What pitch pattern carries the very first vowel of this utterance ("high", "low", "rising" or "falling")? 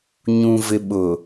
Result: low